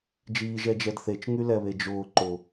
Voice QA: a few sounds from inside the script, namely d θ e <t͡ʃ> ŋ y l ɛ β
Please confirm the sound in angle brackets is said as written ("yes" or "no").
yes